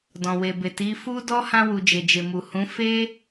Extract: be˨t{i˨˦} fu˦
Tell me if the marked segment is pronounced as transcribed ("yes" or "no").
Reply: yes